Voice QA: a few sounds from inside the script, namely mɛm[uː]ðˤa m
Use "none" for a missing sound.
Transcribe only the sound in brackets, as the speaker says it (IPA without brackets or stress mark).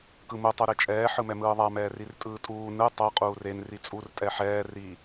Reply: ɯː